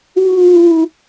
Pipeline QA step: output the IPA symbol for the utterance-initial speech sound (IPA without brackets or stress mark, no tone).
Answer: w